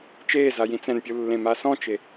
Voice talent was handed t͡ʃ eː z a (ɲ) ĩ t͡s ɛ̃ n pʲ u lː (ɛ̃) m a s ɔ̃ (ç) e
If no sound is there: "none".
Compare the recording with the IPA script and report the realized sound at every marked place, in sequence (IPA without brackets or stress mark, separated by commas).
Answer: j, ẽ, t͡ʃ